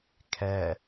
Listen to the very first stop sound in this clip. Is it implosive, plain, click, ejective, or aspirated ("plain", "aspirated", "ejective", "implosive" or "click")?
aspirated